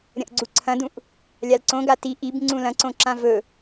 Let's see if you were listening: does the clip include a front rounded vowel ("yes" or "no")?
no